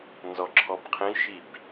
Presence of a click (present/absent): present